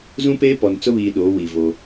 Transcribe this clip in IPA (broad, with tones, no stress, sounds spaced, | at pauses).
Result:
z ũ˦ p eː˦ p ɔ˨ n t͡s ʊ˦ β iː˨ ɗ oː˨˦ w i˨ v o˦